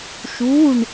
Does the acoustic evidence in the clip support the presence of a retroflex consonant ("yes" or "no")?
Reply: yes